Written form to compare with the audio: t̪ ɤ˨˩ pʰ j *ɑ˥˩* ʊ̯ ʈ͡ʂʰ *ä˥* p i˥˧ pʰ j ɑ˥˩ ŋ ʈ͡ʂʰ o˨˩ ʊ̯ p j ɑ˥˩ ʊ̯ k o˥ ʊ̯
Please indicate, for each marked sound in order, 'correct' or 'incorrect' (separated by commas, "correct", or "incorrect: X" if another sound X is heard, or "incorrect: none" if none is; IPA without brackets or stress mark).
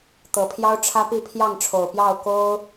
incorrect: ɑ˥, correct